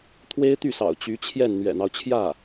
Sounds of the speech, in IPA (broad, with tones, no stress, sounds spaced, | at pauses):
t̪ʰ w e˥ ɪ̯ t̪ y˥˩ s ɑ̰˨˩ ʊ̯ t͡ɕ y˧˥ t͡ɕʰ j ɛ˥˩ n n̪ ɥ ɛ̰˨˩ n̪ ɑ˦ ʊ̯ t͡ɕʰ j ä˥˩